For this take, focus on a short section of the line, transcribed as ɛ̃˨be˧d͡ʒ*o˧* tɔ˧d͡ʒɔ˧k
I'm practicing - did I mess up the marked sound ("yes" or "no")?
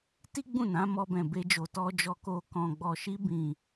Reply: yes